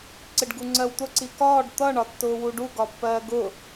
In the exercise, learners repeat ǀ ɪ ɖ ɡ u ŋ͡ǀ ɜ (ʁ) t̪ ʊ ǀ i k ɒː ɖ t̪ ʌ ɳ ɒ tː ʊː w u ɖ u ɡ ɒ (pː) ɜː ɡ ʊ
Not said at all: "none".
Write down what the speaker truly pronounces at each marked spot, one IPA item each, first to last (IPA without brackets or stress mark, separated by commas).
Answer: w, pː